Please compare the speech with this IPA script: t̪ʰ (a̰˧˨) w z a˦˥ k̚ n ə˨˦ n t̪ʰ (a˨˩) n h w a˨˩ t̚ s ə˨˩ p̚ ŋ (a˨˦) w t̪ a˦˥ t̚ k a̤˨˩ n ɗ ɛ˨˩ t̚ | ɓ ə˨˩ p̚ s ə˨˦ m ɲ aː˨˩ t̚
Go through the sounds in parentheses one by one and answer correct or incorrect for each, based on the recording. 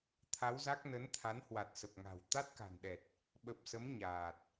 incorrect, incorrect, incorrect

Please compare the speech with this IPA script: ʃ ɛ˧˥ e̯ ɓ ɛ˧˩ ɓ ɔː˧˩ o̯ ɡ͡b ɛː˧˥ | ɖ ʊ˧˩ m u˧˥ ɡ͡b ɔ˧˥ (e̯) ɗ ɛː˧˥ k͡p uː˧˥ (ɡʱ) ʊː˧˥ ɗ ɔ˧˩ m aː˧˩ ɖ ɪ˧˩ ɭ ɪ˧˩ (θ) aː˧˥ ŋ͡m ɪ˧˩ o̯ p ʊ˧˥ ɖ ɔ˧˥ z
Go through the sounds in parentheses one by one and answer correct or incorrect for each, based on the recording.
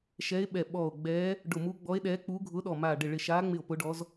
correct, correct, incorrect

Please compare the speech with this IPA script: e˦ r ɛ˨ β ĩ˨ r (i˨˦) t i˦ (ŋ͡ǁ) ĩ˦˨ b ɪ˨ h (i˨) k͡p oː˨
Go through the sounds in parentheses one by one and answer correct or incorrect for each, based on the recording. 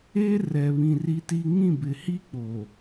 incorrect, incorrect, incorrect

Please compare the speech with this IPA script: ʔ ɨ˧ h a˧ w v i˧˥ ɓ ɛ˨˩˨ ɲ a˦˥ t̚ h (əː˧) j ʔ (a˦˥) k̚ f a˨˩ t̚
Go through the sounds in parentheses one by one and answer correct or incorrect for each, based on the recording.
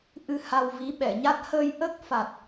correct, incorrect

